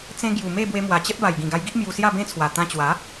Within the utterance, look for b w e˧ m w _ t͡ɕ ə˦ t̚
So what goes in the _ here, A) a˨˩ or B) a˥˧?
A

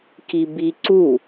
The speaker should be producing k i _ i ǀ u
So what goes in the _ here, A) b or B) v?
A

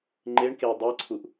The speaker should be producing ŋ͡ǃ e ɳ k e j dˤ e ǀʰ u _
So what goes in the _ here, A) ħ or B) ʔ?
B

